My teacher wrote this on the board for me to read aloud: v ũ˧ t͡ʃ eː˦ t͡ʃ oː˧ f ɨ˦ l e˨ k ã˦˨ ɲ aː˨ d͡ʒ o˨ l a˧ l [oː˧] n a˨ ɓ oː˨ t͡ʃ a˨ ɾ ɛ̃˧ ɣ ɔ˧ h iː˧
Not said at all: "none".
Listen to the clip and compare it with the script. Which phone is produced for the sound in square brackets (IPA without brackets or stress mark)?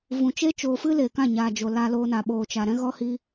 oː˧